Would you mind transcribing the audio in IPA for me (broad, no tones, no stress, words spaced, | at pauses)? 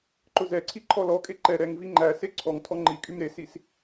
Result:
ǃʊzɛǀʰi ǃʰɔlɔkʼe ǃɛ ɾɛŋvi ŋ͡ǃæ seǀʰɔŋtʰɔ ŋ͡ǃikʼym ɾesis